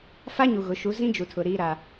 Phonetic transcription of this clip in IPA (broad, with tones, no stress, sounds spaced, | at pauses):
f a˦ ɲ u˨ ɣ ʊ˨˦ ʃ u˨˦ z ĩ˦ d͡ʒ u˨ tʰ ʊ˨ ɾ iː˦ ɾ a˦